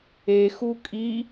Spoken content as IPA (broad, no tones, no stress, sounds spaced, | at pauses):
e x u kʼ i